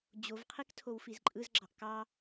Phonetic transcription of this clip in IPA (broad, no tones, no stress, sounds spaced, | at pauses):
d͡ʑ o v qʰ i k tʰ o w f i z ǃʼ ɯ z ɡ͡ǁ ɑ ʔ k ɑ